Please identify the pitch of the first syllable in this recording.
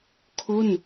falling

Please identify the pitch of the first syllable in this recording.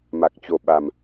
low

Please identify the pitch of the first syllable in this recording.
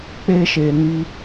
high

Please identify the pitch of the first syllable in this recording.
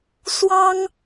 high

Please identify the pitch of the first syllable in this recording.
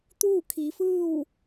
falling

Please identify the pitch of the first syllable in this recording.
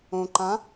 low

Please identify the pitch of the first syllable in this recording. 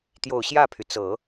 low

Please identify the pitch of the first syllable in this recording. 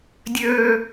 low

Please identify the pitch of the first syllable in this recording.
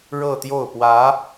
falling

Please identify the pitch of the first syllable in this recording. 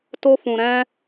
high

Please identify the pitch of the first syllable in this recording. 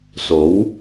rising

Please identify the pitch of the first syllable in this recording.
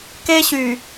high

